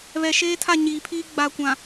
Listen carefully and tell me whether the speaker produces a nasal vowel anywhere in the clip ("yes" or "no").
yes